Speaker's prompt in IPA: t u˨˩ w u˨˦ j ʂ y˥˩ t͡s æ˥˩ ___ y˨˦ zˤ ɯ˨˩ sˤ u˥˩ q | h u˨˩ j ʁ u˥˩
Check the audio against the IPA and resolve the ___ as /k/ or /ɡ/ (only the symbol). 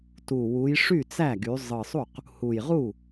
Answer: ɡ